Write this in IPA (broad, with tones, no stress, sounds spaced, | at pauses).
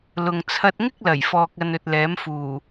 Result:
l ʊ˨ ŋ t͡sʰ ɐ˧ t̚ ŋ ɪ˥ k̚ l ɐ˨˩ j f ɔː˨ k̚ ɐ˨ n ɵ˨ t̚ l ɛː˨˥ m f uː˨˩